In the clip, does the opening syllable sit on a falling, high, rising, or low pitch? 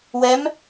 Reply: rising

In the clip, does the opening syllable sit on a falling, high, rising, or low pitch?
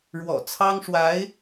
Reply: low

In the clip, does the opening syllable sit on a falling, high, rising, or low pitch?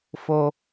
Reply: high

